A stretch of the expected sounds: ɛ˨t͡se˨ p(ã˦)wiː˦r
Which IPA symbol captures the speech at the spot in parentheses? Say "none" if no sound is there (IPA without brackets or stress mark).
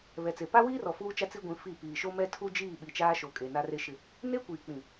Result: a˦